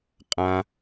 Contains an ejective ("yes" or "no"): yes